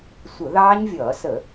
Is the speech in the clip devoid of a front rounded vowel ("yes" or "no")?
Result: yes